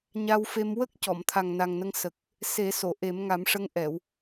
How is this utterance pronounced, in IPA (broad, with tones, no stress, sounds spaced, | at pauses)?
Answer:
ɲ a˧ w f e˧ m w ə˦˥ k̚ c ɔ˨˩˨ m t̪ʰ a˨˩ ŋ n a˨˩ ŋ n ə˧ ŋ s ə˨˩ k̚ | s e˨˩˦ s o˨˩˨ ʔ e˨˩˦ m ŋ a˨˩˦ m ʂ ə˧˥ ŋ ʔ ɛ˨˩˨ w